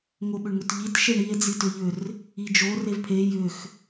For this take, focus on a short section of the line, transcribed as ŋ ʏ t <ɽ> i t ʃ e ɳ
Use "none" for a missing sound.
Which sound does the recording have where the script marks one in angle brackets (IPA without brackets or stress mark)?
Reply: ʎ